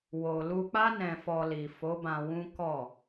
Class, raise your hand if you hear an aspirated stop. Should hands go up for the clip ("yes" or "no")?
no